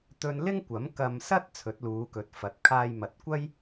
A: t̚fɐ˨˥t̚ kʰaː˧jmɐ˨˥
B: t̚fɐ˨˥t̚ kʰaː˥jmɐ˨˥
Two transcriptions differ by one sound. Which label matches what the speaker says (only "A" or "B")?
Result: A